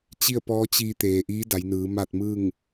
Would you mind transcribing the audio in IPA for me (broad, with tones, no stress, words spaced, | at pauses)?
t͡ɕi˥˨ə̯pɔː˧˥t͡ɕiː˧ t̪eː˩ʔiː˧˥da˩˧jnɯː˩˧ maː˥˨t̚mɯː˥˨ŋ